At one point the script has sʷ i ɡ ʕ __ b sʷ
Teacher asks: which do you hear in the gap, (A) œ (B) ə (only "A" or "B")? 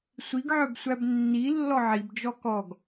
A